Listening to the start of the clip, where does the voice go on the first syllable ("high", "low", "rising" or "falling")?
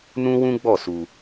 high